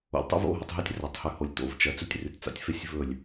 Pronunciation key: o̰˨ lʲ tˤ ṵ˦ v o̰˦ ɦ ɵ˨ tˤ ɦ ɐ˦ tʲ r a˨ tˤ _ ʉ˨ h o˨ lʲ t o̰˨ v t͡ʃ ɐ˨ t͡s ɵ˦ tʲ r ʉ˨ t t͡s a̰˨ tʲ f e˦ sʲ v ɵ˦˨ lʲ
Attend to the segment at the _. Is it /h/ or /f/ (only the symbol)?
h